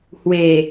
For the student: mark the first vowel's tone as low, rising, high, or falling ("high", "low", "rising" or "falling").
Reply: low